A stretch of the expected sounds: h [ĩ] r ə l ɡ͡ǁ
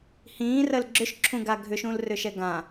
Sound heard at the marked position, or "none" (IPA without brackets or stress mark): ĩː